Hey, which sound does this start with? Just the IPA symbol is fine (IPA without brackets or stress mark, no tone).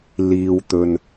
l